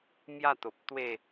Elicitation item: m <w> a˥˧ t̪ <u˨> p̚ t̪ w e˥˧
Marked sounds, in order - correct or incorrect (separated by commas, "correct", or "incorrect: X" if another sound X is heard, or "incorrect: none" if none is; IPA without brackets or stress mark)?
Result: incorrect: j, incorrect: o˨